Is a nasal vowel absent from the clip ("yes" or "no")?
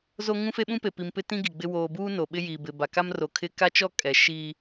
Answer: no